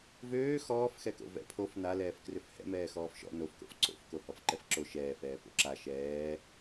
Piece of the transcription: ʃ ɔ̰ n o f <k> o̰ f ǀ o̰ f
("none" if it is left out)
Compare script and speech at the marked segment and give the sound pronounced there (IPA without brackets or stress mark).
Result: k